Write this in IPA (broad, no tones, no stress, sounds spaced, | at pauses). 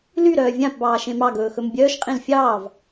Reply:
l y ɾ œː vʲ ã p b ɑː ʃ ẽ m ɑ ɡ ɵː x ɵ m bʲ œː ʃ qʼ ĩ l fʲ ɑː v